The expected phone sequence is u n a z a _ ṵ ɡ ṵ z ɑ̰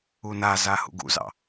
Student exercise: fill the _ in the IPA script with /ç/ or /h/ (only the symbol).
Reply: h